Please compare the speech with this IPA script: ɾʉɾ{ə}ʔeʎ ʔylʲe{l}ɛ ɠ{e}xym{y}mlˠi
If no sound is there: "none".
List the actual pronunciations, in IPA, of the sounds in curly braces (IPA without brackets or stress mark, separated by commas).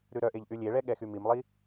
œ, ɭ, ɛ, i